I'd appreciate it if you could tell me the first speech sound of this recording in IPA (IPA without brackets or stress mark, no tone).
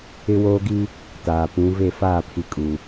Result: ɪ